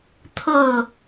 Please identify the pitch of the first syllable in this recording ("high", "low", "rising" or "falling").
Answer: falling